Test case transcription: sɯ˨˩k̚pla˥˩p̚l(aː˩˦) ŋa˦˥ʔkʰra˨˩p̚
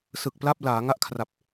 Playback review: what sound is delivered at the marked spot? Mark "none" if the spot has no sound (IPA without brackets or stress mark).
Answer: aː˩˦